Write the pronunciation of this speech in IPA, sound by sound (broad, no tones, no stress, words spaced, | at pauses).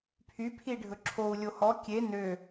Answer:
pʰypʰi ɖʱɵǁʰou̯lʲo hɔ kʲe nø